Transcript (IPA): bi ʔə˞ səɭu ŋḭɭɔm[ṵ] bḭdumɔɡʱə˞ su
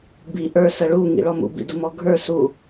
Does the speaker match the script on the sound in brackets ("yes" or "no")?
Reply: yes